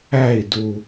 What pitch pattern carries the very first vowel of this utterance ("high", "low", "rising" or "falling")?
falling